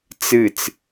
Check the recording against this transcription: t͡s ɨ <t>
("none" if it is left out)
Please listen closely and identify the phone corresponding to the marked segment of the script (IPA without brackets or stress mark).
t͡s